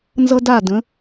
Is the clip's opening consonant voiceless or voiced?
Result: voiced